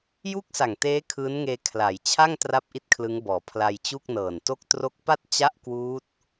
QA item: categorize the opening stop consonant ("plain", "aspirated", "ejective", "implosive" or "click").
plain